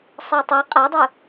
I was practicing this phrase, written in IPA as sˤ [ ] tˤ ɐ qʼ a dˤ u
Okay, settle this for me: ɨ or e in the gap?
e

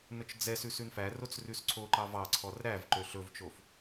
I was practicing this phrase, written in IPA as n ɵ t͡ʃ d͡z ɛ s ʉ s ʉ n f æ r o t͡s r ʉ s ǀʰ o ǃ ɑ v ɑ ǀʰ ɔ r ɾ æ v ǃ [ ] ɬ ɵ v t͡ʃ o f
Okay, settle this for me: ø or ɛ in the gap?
ø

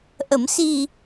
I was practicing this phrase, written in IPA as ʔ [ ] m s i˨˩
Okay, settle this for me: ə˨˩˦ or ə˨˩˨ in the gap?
ə˨˩˨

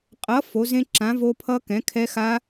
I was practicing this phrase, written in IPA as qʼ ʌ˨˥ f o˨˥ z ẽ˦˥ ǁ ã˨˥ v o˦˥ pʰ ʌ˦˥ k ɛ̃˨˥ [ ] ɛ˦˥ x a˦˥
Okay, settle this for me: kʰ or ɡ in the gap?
kʰ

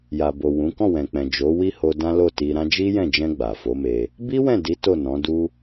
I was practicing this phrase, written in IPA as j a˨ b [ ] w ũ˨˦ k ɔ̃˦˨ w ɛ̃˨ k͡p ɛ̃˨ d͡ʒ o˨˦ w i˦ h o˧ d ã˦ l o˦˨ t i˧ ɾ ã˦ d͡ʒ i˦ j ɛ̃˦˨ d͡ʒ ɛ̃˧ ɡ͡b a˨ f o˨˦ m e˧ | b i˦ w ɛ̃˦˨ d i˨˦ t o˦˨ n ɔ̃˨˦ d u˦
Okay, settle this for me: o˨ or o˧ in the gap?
o˨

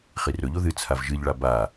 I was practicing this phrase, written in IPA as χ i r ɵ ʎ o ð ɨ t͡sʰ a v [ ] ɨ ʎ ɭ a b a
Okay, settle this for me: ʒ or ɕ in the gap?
ʒ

